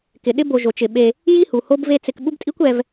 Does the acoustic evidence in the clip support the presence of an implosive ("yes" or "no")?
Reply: yes